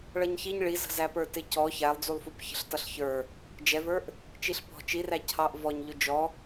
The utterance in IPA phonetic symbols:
ɭ ʌ ɲ ç i ɲ ɭ i z ə̤ z æ p ə˞ t ɪ c ɔ ç æ lˠ d͡z u lˠ f u p ç ə̤ ɬ t ʌ ɬ ç ə˞ | d͡ʒ ɛ v ə˞ ʔ | t͡ʃ i ɬ p ɔ̤ t͡ʃ i r æ cʰ ɑ ʔ v ɔ ɲ ʎ ʊ d͡ʒ ɔ

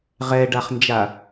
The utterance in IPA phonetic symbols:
ʁ ɛ ɖ a χ n d͡ʒ a

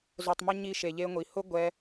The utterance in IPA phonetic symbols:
z o˧ tˤ m ɪ˦ ɲ i˦ ʃ e˧ ʎ e˦ ŋʷ i˧ h ʊ˦ ɡʷ ɛ˦

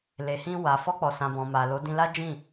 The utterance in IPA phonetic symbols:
l e˨ h ĩ˧ w a˨ f ɔ˧ k͡p ɔ˨ s ã˨ b ɔ̃˨ m a˨ l o˨˦ d ĩ˧ l a˦ d͡ʒ ĩ˦˨

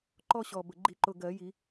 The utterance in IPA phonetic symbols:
ǃ ɔ˥˧ ɕ ɔ˨˩ b ə˨˩ ɡ͡ǃ i˨˩˦ ǃ ʊ˨˩ ɡ ɜ˨˩˦ j i˨˩˦

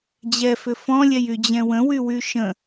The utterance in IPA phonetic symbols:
d͡ʑ ɛ f ʏ f ɔ̃ lʲ ɛ j y d͡ʑ ɛ̃ w ə̃ w y w y ʃ ə̃

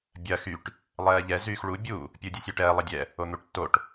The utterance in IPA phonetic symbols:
bʲ ɐ x y ʈ | lˠ ɛː ʎ ɛ z yː x ɭ u bʲ u | pʲ u dʲ u sʲ o ʈ ɛː lˠ ɐ dʲ ɛ | o n̪ u ʈ tː o ʈ

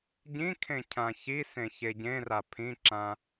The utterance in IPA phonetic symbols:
ɟ ĩ kʰ ẽ cʰ ã ç i s ẽ ç e ɟ ẽ r a pʰ ĩ ǁ ã

